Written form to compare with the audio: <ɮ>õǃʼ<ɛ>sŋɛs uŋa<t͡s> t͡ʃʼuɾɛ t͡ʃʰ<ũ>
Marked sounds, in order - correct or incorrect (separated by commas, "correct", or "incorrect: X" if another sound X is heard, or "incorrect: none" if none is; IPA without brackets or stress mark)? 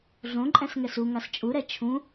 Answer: correct, incorrect: ɛ̃, incorrect: s, correct